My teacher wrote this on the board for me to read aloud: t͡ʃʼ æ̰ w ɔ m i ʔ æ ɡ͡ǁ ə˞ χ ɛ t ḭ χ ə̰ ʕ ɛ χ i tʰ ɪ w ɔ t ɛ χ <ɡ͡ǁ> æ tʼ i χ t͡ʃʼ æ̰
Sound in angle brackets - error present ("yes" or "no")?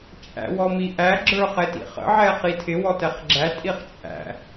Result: no